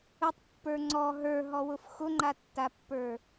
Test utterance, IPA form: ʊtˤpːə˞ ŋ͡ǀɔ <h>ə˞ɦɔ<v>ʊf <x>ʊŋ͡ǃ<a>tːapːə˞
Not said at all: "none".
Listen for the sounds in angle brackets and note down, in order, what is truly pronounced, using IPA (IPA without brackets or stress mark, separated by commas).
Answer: ɦ, w, x, a